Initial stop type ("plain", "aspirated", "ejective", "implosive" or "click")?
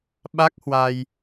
implosive